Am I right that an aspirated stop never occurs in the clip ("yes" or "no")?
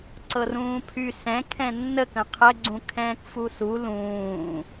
no